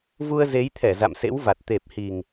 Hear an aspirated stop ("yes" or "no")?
yes